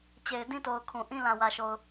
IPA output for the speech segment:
t͡ɕ e˨ ɪ̯ d ĩ˦ t o˨ ʊ̯ kʰ ũ˨ ʔ ĩ˦ l ã˨ w ä˨ ʃ o˨ ʊ̯

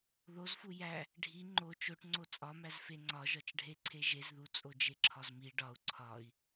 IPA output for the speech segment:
ð o z f u j æ | ɖʱ i ŋ͡ǃ o t͡ʃ o ʈ ŋ͡ǀ o t͡sʼ ɒ m æ z f e ŋ͡ǀ ɒ ʒ ɒ t͡ʃ ɖʱ e ǀʰ e ʒ e z ð u t͡sʼ o d͡ʒ e ǁʰ ɒ z m i ɖ ɒ u̯ ǀʰ ɒ i̯

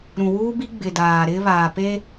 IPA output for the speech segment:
ɾ ũ˨ w uː˦ b i˦ ɡ͡b ɪ˨ d aː˨ ɾ ɪ˦ β aː˨ p e˦

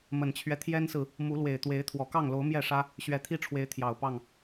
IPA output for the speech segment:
m ə˨˩ n t͡ɕʰ ɥ ɛ˦ t̪ʰ j ɛ˦ n s ɹ̩˨ | m u˨˦ l w e˨˩ ɪ̯ t̪ w e˨˦ ɪ̯ t̪ʰ w ɔ˨˩ k ɑ˥˨ ŋ l o˨˦ ʊ̯ m j ɛ˥˨ ʂ ä˦ | ɕ ɥ ɛ˨˦ t̪ʰ i˦ ʈ͡ʂʰ w e˨˦ ɪ̯ t̪ʰ j ɑ˨˩ ʊ̯ p ɑ˥˨ ŋ

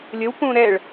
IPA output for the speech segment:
lʲ ə w p ũ ɾ ɛ ɭ

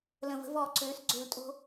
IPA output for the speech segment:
l ə̃˨ v ə̤˨˦ v ɔː˨ ǀ øː˨˦ s ɡ͡ǀ ø˧ l tʼ o̤˦

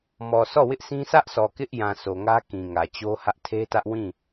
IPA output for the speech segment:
m ɔ˨ sʰ ɔ˦˨ w ɪ˦ ʔ sʰ ĩ˦ sʰ ä˦ ʔ sʰ ɔ˨ k ɪ˦ ʔ j ã˨ s o˨ ŋ ä˦ k ĩ˨ ŋ ä˨ t͡ɕ o˦ h ä˦ ʔ tʰ e˦ t ä˦ ʔ w ĩ˦˨

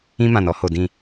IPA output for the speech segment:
ĩ˦ m ã˨ n ɔ˦ h o˨ d ĩ˦˨

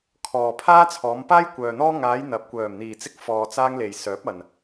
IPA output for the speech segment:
kʰ ɔː˨ pʰ aː˥ t͡sʰ ɔː˨˧ m p aː˥ j kʷ œː˨ n̪ ɔː˥ ŋ aː˨˧ j n̪ ɐ˨ p̚ kʷ œː˨˩ m n̪ iː˨˩ t͡s ɪ˧ k̚ f ɔː˨ t͡s aː˧ ŋ l e˨˩ j s œː˨˥ p̚ ɐ˨ n

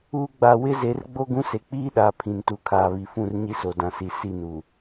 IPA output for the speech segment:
uː˦ ɡ͡b a˦ w ɪ˦ z e˨˦ r ɡ͡b o˦ ɡ ũ˦ s e˨ k͡p iː˦ ɗ aː˨ pʰ ĩ˨ n t u˨ kʰ aː˨ β i˨ f ũ˦˨ r ɲ i˦ s o˨ d ã˨ s i˨ s i˦˨ n u˨

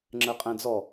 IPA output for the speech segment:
ŋ͡ǁ ɜ qʼ æ̃ d͡z ɔ

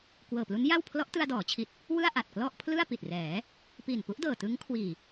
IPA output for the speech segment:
k w ɤː˨˩ p l u˦˥ n j a˥˩ w pʰ l ɔ˦˥ ʔ t ɯ˧ a̯ d ɔː˩˦ t͡ɕʰ i˨˩ t̚ | w ɯ˥˩ a̯ ʔ a˨˩ t̚ k l ɔ˥˩ ʔ pʰ l ɯ˥˩ a̯ p i˨˩ t̚ r ɛː˩˦ | p i˨˩ n p u˦˥ ʔ d ɤː˨˩ t ɯ˦˥ ŋ kʰ w iː˨˩

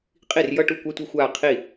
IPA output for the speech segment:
qʼ i˥˩ r j ʌ˥˧ ʈ u˥˩ kʷ a˥ tʷ ʌ˥˧ xʷ aː˥˧ qʰ i˥˩

